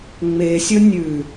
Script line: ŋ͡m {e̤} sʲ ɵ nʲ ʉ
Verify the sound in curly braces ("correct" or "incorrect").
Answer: incorrect